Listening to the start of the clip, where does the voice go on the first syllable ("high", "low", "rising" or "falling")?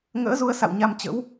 rising